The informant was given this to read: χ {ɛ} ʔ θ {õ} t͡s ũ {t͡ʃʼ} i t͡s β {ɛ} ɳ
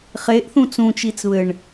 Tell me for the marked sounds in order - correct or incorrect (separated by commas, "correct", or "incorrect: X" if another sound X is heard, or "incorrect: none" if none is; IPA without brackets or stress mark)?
incorrect: e, incorrect: ũ, incorrect: t͡ʃ, incorrect: ɘ